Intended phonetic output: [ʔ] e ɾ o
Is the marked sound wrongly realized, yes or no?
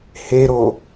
yes